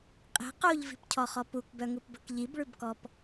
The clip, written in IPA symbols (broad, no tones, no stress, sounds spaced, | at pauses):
qʼ e̤ q o ʎ v i̤ p cʰ ɔ χ ɔ p u k b œ ŋ u p b ɵ k ʎ i b ɭ ʉ b k ɔ p